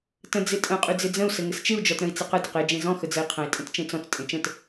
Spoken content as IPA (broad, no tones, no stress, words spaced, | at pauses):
tə̃ d͡zɪtʼə̃ qʼyd͡zɪd͡zə̃u̯ sɘŋɘst͡ʃɪu̯ d͡ʒɔtɾə̃i̯t͡sɪqə dɪqe d͡ʒẽzɔ̃ xəd͡zəi̯qʰə̃i̯ tʼə̃tt͡ʃẽt͡sɔ̃t͡s tʼẽt͡ʃə̃t